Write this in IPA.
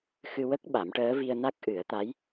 xɨ˧wə˦˥k̚ɓa˨˩˦mʈəː˧˥ vi˧ə̯na˦˥k̚ ʔɨ˨˩˦ə̯t̪a˧˥j

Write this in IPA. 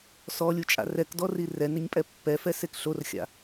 sɔlʲut͡ʃʼa̰ rɛkdɔri rɛnɪɲpʼɛ pːɛfɛsek ɬorxʲa̰

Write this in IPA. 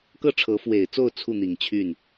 kɤ˥˩ʈ͡ʂʰɤ˧˥fwe˨˩ɪ̯t͡so˥˧ʊ̯ t͡sʰu˥˩n̪i˨˩ŋt͡ɕʰy˥˩n

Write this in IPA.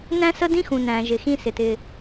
næ̃˥sə˥dĩ˥xũ˩ næ̃˩ ʒɪ˩ xĩ˥ sɪ˩tɪ˩

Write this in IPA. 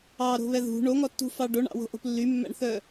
ɑɾo̤βɛ ðṳ ɳoŋɔtːṳfɑ ɖoɳɑ̰wo̤ʔo̤p lːymːæ̰ɳθœ

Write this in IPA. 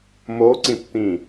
moǀĩpt̪ĩ

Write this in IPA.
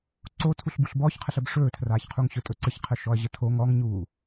ǀo tʰuɬbuɬbɔːçqʰəɬ əbʂɵːtʰraːçqʰuŋ ɕɵtʼɵǀəçqʰə ʃɔɐ̯ʑətʰo ŋɔŋɲuː

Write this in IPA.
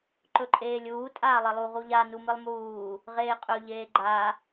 ǃɵǃʼeːlʲuː tʼaːlˠelˠu ʁuʎa numɨlˠmuː | ʁeːqʼɵ ʎeːɡ͡ǃa

